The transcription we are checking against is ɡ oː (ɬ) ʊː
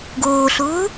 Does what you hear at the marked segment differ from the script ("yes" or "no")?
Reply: no